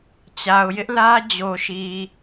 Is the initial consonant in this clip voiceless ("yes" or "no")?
yes